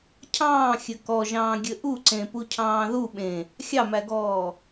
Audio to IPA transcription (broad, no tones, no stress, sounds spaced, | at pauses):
cʰ ɑ̃ː xʲ ɘ k ɔ ʒ ɑ̃ː ɡʲ ɘ ʔ u ǀ ẽ p u cʰ ɑ̃ː ð u ɓ ẽ | xʲ ɑ m æ ɡ ɔː